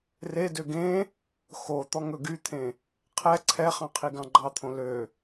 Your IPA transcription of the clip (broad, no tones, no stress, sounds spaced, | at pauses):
r e d ø ɡ ẽ | x o t̪ ɔ ŋ ɵ ɡ y t̪ʰ ẽ | qʰ ɛ ǀʰ ɛ χ ɑ̃ qʰ i ɡ ɑ̃ ɡ͡ǃ ɑ t̪ʰ õ l ø